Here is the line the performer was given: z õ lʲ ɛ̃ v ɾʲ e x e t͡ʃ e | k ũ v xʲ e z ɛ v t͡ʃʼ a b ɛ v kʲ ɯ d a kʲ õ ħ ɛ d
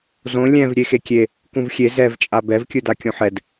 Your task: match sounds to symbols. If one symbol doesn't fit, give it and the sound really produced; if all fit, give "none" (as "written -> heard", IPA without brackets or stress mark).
t͡ʃ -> kʲ